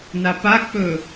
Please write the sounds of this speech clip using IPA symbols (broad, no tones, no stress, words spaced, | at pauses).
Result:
napak͡pɵ